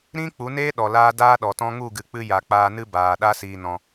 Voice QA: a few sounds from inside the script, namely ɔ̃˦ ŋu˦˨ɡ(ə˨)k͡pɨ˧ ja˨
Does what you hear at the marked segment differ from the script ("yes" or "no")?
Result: yes